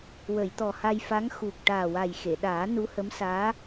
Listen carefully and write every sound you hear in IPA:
w ə˨˩˨ j t̪ ɔ˨˩ h a˧ j f a˧˥ ŋ x u˨˩ k̚ ʈ aː˨˩ w a˨˩ j x e˨˩˨ ɗ aː˨˩˦ n u˧˥ h ə˧˥ m s aː˧˥

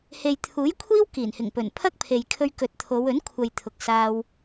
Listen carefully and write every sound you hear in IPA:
h e˨ j t̪ʰ uː˨˥ j kʷʰ iː˥ w k iː˨˩ n h ɪ˨˩ ŋ p ɵ˨˩ n pʰ ɐ˥ k̚ pʰ e˨ j kʰ ɵ˧ ɥ k ɵ˨ t̚ t̪ʰ o˨˧ w ɵ˨˥ n kʷʰ ɐ˨ j t̪ʰ ʊ˨ k̚ s aː˧ w

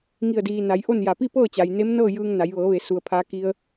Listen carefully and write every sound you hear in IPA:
ŋ i˧˩ ə̯ d iː˩ n a˩˧ j ʔ o˥˨ n j a˧˩ p i˥˨ p ɤː˥˨ t͡ɕ a˩ j n e˧˥ m n ɤː˥˨ j ɯː˧ ŋ n a˩˧ j ʋ ɤː˩˧ ʋ e˩ s u˩ ə̯ pʰ aː˧˥ k i˧ ə̯

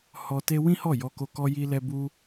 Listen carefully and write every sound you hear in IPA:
h ɔ˧ t e˧ w ĩ˦ h ɔ˦˨ j ɔ˧ k o˧ k ɔ˧ j i˧ l ɛ˧ b u˧

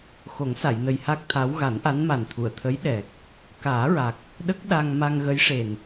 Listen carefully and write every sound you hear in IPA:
x o˨˩˦ ŋ s a˨˩˨ j n ə˨˩ j h a˦˥ k̚ t̪ʰ a˧˥ w ɣ a˨˩˦ n ʔ a˧˥ n m a˨˩ n t̪ʰ u˨˩˨ ə̯ t̪ʰ ə˧˥ j ɗ ɛ˨˩ k̚ | k aː˨˩˦ ɹ a˨˩ k̚ | ɗ ə˦˥ k̚ ɗ a˧ ŋ m a˧ ŋ ɣ ə˧˥ j ʂ e˨˩ n

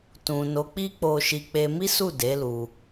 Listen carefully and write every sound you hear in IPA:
t ũ˨ n o˨˦ k͡p i˦ k͡p o˧ ʃ i˧ k͡p e˧ m i˦ s u˦˨ d e˨˦ l u˧

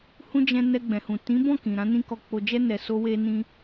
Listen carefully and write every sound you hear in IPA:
h ũ˦ d͡ʒ ɛ̃˧ n ɛ˧ ɡ͡b ɛ̃˨ h ũ˨ t ĩ˨˦ b ɔ̃˦˨ k ĩ˨ ɾ ã˨˦ n ĩ˧ k ɔ˨ k͡p o˨ d͡ʒ ɛ˧ n ɛ˨ s o˧ w e˧ n ĩ˧

